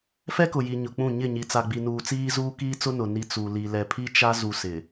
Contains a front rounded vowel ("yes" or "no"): no